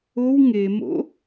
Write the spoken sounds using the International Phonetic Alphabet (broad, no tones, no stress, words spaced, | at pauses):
ow ŋemo̰